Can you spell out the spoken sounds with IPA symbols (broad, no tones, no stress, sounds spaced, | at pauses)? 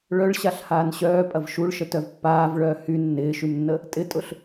ɭ œ ɭ ɕ a ɬ h aː n ɕ œː pʼ ɐ v ʃ u ɭ ʃ ə t œ v pː aː v ɭ œː h y nː ɪː ʃ y m nː ə | tʼ ɪ tʼ ʊ ɬ